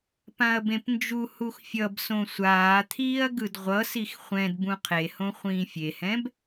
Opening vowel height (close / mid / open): open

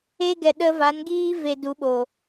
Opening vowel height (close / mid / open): mid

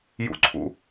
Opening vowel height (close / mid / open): close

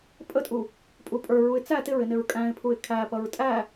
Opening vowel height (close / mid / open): mid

